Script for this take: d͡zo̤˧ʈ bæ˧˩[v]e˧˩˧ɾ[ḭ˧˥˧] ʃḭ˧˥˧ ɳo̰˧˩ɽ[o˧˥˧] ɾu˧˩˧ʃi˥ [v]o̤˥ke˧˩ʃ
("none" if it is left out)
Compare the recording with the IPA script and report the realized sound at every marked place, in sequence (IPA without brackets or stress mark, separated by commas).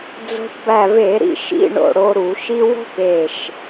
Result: v, ḭ˧, o˧, w